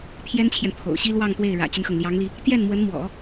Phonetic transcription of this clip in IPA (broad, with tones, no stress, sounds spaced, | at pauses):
pʰ j ɛ˥ n t͡ɕʰ j ɛ˨ n pʰ o̰˨˩ ʊ̯ ɕ i˥ l w ɑ˥˧ ŋ t̪ w e˥˩ ɪ̯ ɻ ä̰˨˩ t͡ɕ y˦ n x ɤ˩ ŋ l j ɑ˧˥ ŋ l i˧ | t̪ j ɛ˥˩ n m w ə˧˥ n m w ɔ̰˨˩˦